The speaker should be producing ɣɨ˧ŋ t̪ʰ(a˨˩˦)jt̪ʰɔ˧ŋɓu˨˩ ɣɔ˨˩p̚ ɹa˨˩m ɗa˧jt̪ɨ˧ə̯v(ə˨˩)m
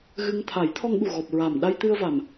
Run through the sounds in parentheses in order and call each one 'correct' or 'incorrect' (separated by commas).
correct, incorrect